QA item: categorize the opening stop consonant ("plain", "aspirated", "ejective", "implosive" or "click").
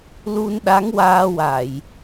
implosive